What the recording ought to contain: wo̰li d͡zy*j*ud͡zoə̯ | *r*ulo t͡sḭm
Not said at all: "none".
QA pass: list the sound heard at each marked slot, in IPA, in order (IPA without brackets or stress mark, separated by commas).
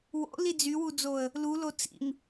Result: w, l